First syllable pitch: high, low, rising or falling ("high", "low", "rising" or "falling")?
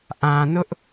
low